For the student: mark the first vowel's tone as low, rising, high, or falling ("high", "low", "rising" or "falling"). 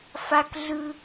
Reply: high